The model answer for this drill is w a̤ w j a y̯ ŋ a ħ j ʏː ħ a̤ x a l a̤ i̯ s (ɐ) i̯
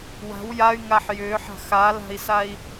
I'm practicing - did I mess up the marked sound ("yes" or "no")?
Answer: yes